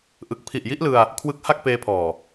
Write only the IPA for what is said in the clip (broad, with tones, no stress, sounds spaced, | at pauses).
ʔ ɯ˨˩ k̚ pʰ i˨˩ ʔ j i˦˥ ʔ l ɯ˧ a̯ | kʰ w ɯ˦˥ k̚ h a˥˩ k̚ p eː˧ pʰ ɔː˨˩